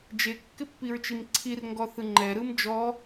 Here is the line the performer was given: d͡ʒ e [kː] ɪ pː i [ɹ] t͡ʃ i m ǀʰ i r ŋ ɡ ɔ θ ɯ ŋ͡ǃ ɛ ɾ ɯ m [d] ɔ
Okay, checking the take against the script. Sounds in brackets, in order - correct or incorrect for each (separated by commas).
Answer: correct, correct, incorrect